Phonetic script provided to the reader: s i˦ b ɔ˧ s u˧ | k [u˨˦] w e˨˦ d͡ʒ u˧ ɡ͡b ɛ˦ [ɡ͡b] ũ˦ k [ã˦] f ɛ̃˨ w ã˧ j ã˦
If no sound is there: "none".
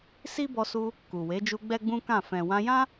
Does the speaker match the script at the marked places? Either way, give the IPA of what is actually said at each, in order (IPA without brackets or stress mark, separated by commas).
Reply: u˨, ɡ͡b, ã˦˨